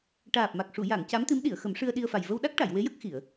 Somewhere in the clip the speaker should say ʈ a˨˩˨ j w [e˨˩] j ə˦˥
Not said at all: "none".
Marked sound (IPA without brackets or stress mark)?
e˧˥